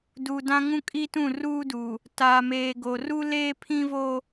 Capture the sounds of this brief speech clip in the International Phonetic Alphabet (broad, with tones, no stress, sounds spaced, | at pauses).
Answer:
d u˨ d ã˦ ŋ ũ˦ kʼ i˦ t ũ˦˨ r uː˦ d u˨ | t a˨ m eː˨ ɡ o˨ r u˦ l eː˦ pʰ ĩ˦ v o˦